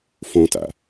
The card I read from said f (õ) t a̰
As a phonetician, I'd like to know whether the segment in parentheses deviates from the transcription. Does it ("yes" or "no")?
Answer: no